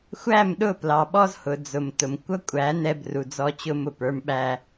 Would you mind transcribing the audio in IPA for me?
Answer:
xʷ æ˦˨ m ɗ ʊ˦˨ p l ɑ˨ ɓ ɔ˦ z h ʊ˨ d͡z ʊ˨ m t ʊ˨ m kʷ ʌ˦ kʷʼ æ˨˦ n ɛ˦ b r u˨ d͡z ɔ˦ t͡ɕ ʊ˦ m ʊ˨ p ə˞˦ m ɓ æ˦

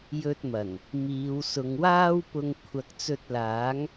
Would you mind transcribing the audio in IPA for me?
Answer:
j ɵ˧ t̚ m ɐ˨˩ n | m iː˨˧ w s ʊ˨˧ ŋ w aː˥ w p ʊ˧ ŋ kʷʰ ɐ˨ k̚ t͡s ɵ˧ t̚ l aː˨˥ ŋ

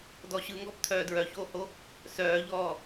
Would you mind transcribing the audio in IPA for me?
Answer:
d ɔ ɕ ɯ ŋ ɡ ɔ p t̪ʰ œː d ɹ œ ç oː h o | s œː ʎ ɔː

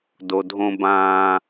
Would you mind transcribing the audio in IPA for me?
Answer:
d o˨ dʱ õ˦ b ãː˦

